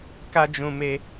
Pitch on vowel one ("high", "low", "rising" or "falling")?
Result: high